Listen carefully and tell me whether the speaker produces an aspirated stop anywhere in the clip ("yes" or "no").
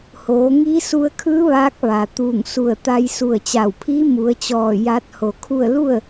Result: yes